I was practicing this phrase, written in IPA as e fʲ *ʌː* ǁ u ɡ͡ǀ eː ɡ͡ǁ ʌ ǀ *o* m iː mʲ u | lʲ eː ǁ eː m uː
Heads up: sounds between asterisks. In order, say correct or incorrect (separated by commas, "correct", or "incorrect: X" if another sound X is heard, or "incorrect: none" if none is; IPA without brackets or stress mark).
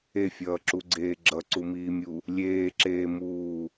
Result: correct, incorrect: u